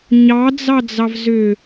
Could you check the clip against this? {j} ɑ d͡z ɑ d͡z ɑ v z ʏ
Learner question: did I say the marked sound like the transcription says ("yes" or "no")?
no